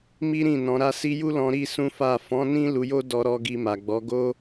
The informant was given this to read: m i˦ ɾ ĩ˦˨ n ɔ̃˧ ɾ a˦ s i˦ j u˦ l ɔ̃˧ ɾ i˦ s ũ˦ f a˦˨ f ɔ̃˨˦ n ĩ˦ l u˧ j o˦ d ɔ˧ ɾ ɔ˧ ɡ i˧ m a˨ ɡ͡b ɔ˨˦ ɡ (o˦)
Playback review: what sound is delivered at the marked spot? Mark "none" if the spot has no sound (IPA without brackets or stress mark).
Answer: o˦